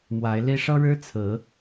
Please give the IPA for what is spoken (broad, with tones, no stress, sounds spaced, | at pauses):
m w a˨˦ ɪ̯ l i˦ ʂ ɤ˦ ɻ ɻ̩˦ t͡sʰ ɹ̩˨˦